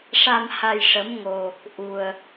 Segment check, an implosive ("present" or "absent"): absent